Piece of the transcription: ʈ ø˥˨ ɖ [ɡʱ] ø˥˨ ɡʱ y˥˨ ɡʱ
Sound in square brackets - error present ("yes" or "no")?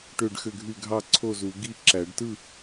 yes